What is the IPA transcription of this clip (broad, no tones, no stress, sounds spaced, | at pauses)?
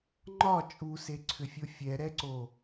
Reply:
ŋ͡ǃ ɒ t͡ʃʼ u s e ǀʰ ʏ fʲ o fʲ ɛ ɾ ɛ ǀ o